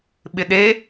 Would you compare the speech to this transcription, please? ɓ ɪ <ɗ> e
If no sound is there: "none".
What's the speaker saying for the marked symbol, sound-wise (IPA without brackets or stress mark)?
ɗ